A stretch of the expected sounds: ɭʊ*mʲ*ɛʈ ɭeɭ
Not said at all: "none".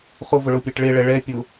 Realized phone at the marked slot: pʲ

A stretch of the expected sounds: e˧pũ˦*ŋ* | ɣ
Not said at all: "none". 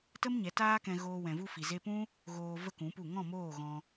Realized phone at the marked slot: none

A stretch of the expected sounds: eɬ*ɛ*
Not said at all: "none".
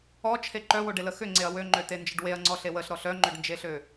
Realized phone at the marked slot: ø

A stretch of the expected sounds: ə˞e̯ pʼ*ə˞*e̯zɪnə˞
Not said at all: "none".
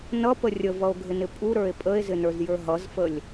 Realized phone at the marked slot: ə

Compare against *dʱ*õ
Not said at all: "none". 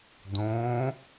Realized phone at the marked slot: d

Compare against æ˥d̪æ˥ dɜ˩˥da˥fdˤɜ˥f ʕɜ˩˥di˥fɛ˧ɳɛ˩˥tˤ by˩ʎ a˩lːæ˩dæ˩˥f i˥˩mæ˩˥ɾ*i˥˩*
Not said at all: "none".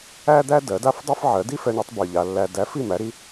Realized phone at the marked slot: i˧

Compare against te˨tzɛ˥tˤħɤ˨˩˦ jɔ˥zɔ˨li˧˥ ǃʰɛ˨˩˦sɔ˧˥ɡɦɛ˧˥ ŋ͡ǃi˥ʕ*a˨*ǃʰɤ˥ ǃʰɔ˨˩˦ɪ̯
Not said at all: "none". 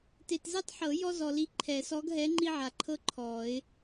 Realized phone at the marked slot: a˨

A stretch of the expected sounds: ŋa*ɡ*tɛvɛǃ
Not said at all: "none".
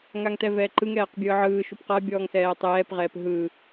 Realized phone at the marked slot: ŋ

